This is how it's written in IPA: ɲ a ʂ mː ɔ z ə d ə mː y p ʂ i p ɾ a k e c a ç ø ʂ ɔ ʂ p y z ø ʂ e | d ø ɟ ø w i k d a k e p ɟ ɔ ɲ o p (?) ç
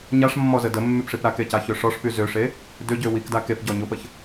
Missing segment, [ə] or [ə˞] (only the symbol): ə